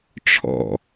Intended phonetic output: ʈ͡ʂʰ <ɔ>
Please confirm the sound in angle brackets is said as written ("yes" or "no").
no